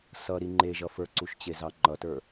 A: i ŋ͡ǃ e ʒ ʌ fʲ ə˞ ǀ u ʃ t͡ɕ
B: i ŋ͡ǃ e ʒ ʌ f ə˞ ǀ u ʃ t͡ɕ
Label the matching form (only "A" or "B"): B